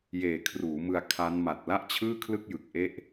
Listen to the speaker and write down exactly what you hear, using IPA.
j eː˨˩ kʰ r uː˩˦ m ɯ˧ a̯ kʰ a˦˥ n m a˨˩ t̚ l a˥˩ ʔ t͡ɕʰ ɯː˥˩ kʰ l ɯ˥˩ k̚ j ɯ˨˩ k̚ ʔ e˥˩ ʔ

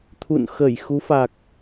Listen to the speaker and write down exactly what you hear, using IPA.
t̪ʰ ṵ˧˨ n x ə˧˩ j x u˨˦ f a˨˩ k̚

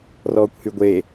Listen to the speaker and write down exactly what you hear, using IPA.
r ɔː kʷ h y ɡʷ e

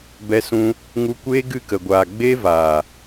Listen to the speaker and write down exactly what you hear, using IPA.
b ɛ˧ s ũ˧ | ŋ u˧ kʷ eː˦ ɡ ɨ˦˨ k ə˨ ɡʷ aː˨ ɡ͡b eː˦ v aː˨

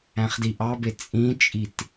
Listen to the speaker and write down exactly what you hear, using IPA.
æ̃ χ d i ʔ ɑ b e t͡sʼ ĩ t͡ʃʼ i t

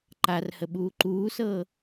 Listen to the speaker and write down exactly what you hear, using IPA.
ǃ a r h ə ɓ uː ǃ uː s ɤː

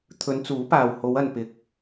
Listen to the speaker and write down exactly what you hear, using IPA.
t̪ʰ ɵ˨˧ n t͡s uː˨˥ p aː˨ w h o˨˧ w ɐ˨ n p ɪ˨ k̚

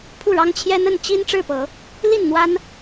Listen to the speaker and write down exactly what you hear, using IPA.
pʰ u˥˨ ɻ ɑ˦ ŋ t͡ɕʰ j ɛ˦ n̪ ə˥˨ n t͡ɕ i˦ n ʈ͡ʂ ɻ̩˥˨ p ɤ˨˦ | l i˥˨ n n̪ w a˦ n

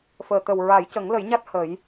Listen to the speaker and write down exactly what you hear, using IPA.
f əː˨˩ t̪ ə˨˩ w ɹ a˨˩˦ j c ə˨˩˦ ŋ l ə˨˩˦ j ɲ a˦˥ t̚ h ə˨˩˦ j

